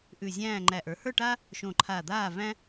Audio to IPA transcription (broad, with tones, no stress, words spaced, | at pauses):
ʔʉ˧˩zʲæ̃ː˥˨ ŋ͡ǃæ˧˩ʔə˞˩˥ hə˞˥˨ʈaː˥ | ʃõ˧˩ǃʰa˧˩d̪aː˥˨ væ̃˥